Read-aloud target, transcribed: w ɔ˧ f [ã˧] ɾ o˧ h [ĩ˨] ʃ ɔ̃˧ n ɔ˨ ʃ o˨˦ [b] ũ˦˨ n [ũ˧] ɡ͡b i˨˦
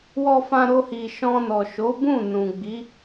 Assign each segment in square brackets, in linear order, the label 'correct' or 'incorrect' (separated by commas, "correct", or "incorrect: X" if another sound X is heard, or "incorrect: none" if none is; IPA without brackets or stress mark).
correct, incorrect: i˨, correct, incorrect: ũ˨